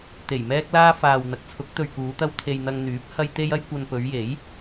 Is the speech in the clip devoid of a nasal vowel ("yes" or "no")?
yes